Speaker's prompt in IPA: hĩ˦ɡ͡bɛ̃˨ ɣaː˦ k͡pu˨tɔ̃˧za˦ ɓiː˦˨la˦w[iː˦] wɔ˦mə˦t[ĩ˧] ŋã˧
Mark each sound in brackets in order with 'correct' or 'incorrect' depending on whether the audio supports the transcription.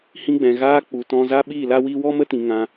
correct, incorrect: ĩ˨

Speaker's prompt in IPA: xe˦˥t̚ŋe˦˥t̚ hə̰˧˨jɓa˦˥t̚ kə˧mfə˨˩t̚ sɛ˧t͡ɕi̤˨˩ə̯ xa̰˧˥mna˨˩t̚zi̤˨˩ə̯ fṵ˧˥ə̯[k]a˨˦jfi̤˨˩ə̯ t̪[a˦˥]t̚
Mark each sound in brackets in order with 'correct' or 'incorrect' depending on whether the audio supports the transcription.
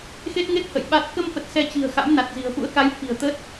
correct, incorrect: ə˦˥

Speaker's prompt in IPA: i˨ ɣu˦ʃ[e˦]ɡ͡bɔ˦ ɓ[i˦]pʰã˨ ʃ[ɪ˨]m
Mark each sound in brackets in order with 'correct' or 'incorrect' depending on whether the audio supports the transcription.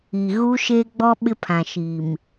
correct, incorrect: ɪ˦, incorrect: i˨

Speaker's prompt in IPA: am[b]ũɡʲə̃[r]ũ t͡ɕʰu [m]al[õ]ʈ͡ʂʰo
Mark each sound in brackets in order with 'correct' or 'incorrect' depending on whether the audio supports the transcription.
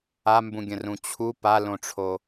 correct, correct, incorrect: p, correct

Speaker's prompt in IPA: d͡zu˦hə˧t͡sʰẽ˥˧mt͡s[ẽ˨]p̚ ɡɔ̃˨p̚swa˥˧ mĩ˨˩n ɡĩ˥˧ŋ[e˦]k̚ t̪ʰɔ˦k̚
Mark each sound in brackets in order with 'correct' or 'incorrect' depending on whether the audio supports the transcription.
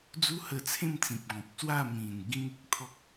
incorrect: ĩ˨, correct

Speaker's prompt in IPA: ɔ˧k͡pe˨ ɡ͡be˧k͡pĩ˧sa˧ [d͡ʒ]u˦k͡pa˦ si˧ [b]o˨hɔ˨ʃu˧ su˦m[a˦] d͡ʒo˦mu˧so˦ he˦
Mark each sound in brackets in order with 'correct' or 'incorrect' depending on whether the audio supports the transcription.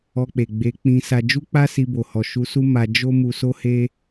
correct, correct, incorrect: a˧

